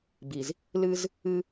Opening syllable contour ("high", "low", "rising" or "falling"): low